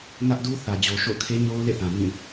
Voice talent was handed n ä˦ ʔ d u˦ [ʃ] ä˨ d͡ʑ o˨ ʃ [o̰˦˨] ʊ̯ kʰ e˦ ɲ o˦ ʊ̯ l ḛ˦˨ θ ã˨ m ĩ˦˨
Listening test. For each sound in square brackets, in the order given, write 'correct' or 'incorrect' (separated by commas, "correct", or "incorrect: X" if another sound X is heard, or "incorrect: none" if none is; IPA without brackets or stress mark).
incorrect: θ, correct